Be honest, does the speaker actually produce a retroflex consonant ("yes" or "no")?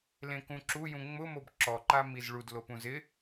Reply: yes